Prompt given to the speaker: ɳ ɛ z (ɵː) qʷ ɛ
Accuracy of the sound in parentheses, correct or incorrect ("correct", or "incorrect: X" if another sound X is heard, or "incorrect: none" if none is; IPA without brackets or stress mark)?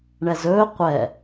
correct